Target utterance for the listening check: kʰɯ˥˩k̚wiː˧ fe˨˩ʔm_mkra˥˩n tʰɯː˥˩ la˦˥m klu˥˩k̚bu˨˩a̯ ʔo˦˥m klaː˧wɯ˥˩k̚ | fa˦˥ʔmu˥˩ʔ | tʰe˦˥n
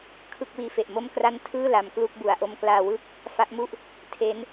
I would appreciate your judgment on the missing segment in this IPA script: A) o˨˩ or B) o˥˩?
B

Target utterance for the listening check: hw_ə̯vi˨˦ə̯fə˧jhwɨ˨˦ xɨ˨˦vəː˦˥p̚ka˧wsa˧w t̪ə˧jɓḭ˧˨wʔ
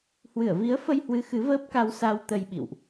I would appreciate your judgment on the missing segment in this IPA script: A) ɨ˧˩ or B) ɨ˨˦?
A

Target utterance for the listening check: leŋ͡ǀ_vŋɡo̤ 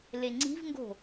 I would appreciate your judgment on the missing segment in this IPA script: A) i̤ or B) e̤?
A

